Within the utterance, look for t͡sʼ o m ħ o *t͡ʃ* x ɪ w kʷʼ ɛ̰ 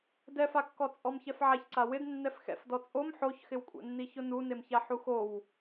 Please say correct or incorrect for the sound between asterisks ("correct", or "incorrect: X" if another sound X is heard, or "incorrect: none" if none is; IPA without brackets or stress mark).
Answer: incorrect: ç